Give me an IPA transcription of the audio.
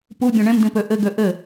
pubʲõ ɳẽmdĩpø ʔɘɡø ʔɘ

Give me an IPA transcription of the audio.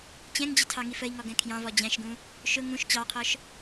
t͡ɕɛ̃ŋd͡ʑɪ tʰɑŋifəi̯ŋɔ ɡɛ̃kʰjɑ̃vɔ d͡ʑæ̃ʃɡũ | ʃʊ ŋũʃ t͡ɕɑqʰɔʃ

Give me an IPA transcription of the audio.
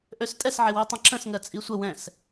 ʔøstʼɛsʕɪwi tˤə̃ǁə̃s ŋɜt͡sʼisʷə wɛ̃s

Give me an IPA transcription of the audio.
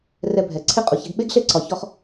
rɛ˧bʱɛ˨ ǀʰe˦qʼu˨çɛ˧ɡ ɓe˦ɡ ɬe˦ǀɒ˨çɔ˧χ

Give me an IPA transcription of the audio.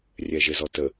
rʲɛʒezɔtə

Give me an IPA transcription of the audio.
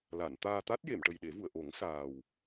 la˨˩˨nt̪aː˧ t̪a˦˥t̚je˨˩˨mʈə˨˩j ɗe˨˩˦vu˨˩˨ə̯ʔo˨˩˦ŋ saː˨˩w

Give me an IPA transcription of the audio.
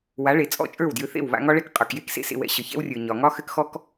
wa˨˦ɭe˨ t͡sʼɔ̰˦˨t͡ʃʼə˞˦˨wdjʏ˧θḛ˦˨w βa̰˧ŋɒ˦ɭɛ˦k qʼə˞˨kje˦k sḛ˦sḛ˧wɛ̰˧ ɕə˨çɛ̰˦wrʲə˞˨ ɲɒ˨ŋɒ˦xɘ˦kxɔ˦k

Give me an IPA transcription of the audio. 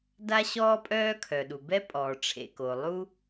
da˥ɕɔː˥pʼœː˥ kʰœ˩ɗu˩bɛ˥ pʼɔː˩ʈ͡ʂʰḛ˩ko˩ lˠu˥

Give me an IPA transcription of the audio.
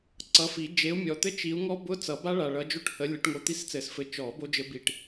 ǀʌ˨˦fi˨˩˦ d͡ʒe˨˦u̯mʲɔ˨t̪ɘ˦˥ t͡ʃi˨˦u̯ŋɔ˦˥ bʊ˧˥˧ t͡sʌ˨˩˦ba˦˥ɭa˨ɭʌ˨˦ d͡ʒo˦˨ʈhə˨˦ lʲə˨˩˦ʈŋo˨˦ t̪i˦˨st͡sɘ˨˩˦sfɘ˨˦ t͡ʃɔ˨˩˦ bo˦˥d͡ʒɘ˦˥ bi˦˨ʈ

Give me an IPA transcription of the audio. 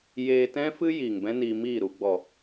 jeː˧tɛ̃˦fɨ˦ jiː˨ŋbɛ̃˦niː˧miː˦˨ ɾu˨ɡ͡bɔ˨

